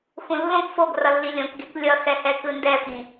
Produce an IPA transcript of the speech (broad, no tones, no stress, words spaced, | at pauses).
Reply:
xũlːõk foɡ rʌlːilʲõkɡek lʲʌxɛhɛ kɯndɛfĩ